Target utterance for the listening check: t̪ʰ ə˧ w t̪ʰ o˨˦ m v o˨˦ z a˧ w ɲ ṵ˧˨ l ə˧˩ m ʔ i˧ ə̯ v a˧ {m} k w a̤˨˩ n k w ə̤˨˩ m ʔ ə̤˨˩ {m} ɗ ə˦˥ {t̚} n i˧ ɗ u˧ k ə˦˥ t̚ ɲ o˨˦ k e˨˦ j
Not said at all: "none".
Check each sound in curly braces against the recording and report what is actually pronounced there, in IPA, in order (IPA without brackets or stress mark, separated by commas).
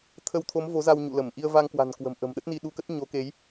ŋ, m, t̚